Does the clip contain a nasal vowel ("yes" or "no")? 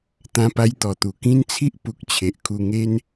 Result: yes